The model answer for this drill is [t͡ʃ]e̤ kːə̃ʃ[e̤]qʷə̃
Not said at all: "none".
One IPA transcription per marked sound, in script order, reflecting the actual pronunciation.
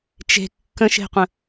t͡ʃ, e̤

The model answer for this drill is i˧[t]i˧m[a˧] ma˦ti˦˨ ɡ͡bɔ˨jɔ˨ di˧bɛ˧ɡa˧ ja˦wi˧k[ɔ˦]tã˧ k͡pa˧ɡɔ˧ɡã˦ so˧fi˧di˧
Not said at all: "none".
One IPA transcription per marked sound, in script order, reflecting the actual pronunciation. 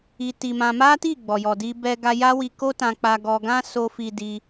t, ã˧, o˦

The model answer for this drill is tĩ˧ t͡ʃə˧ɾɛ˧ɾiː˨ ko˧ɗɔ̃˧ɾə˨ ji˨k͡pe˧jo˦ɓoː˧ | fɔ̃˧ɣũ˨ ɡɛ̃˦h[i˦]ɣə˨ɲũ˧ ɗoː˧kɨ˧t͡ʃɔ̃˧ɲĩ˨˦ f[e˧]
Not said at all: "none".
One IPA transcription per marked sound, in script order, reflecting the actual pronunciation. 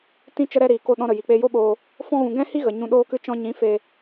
i˦, e˧

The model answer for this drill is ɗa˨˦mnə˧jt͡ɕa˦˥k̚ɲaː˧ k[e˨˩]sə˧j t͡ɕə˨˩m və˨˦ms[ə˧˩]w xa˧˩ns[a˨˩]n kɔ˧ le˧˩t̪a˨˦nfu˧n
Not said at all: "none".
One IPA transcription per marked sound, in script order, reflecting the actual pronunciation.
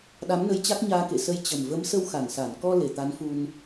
ḛ˧˨, ə˧, a˧˩

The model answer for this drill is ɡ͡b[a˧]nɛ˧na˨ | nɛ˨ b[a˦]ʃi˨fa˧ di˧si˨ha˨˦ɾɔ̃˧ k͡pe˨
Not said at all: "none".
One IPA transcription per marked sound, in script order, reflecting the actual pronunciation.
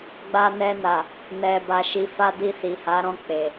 a˧, a˨

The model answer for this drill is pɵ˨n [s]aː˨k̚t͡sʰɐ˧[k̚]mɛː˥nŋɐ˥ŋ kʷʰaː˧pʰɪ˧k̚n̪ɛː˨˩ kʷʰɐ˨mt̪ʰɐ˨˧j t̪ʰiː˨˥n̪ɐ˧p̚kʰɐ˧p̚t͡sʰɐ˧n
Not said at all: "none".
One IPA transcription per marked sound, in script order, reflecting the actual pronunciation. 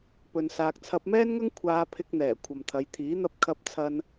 s, p̚

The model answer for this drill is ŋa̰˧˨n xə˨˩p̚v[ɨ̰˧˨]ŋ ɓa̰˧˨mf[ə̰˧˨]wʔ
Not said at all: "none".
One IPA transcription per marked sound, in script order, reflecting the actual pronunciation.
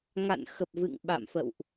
ɨ̰˧˨, ə̰˧˨

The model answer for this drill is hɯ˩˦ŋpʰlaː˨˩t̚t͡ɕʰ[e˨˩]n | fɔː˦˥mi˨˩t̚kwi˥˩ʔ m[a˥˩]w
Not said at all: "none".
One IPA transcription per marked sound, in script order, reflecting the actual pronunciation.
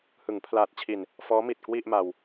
i˨˩, a˧

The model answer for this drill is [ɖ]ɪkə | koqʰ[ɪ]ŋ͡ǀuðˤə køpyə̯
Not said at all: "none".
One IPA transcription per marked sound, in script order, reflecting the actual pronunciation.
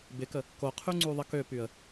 b, y

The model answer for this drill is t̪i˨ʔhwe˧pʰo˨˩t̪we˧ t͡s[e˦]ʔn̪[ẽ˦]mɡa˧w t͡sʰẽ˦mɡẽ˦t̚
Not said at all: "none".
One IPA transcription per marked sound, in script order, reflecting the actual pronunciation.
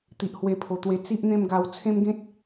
i˦, ẽ˥˧

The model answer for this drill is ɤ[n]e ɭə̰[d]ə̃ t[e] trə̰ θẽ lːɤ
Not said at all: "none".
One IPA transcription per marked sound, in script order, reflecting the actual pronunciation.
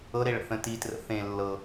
ɾ, θ, i

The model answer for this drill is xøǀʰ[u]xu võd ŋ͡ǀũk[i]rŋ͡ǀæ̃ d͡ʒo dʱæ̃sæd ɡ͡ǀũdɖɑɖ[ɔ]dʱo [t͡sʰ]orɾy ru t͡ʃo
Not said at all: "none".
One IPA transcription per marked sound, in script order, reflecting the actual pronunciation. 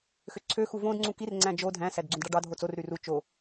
ø, i, ɑ, t͡s

